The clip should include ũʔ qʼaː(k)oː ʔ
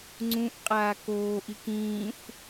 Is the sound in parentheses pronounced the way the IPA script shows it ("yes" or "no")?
yes